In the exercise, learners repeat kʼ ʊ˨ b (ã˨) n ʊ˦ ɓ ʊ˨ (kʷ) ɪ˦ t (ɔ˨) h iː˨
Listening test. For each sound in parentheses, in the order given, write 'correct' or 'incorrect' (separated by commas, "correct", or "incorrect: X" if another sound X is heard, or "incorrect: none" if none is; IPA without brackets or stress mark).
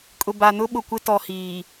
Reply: incorrect: a˨, correct, correct